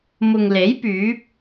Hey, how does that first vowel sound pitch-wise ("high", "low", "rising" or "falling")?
low